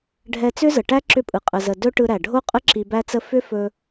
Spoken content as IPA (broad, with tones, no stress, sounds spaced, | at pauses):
ɖʱ ɛ˧ t͡s ʏ˦ z ə˨ ʈ æ˦ ǁ ʏ˧ pʼ ɯ˨ qʼ ə˧ z ə˧ d ɵ˦ ʈ ɯ˧ ɾ æ˨ ɖʱ o˦ qʼ ə˦ ǁ i˧ b æ˦ t͡s ə˦ f ʏ˦ f ɵ˧